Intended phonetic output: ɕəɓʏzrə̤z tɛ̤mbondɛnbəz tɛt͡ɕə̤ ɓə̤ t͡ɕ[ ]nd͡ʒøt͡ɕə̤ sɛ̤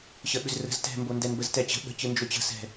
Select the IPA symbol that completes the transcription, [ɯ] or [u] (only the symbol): ɯ